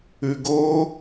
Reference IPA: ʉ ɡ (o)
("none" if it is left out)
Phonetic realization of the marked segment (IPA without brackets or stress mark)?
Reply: o